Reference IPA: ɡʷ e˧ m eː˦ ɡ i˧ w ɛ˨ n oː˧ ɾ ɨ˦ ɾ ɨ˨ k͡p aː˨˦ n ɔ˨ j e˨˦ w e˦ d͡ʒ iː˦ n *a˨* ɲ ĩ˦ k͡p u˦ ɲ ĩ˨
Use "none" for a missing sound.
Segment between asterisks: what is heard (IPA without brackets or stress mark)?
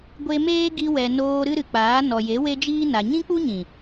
a˨